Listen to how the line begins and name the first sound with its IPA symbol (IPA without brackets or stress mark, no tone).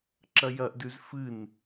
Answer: ǁ